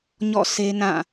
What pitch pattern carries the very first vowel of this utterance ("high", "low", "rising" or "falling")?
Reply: falling